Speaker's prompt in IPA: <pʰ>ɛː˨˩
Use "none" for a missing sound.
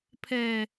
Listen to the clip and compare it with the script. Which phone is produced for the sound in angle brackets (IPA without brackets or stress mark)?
pʰ